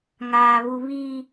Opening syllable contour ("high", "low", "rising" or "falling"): high